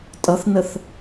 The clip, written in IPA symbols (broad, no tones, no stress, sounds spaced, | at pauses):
tʼ ʌ θ n ə θ